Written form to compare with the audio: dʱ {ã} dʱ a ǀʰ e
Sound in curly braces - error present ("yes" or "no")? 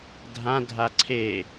no